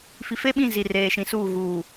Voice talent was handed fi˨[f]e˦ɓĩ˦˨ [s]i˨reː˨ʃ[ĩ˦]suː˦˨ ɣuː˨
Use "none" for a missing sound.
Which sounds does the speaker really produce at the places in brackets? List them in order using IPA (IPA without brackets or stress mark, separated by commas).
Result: f, z, ĩ˨